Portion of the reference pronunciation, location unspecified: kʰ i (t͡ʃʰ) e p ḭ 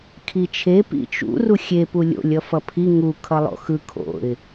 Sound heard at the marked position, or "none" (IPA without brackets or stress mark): t͡ʃʰ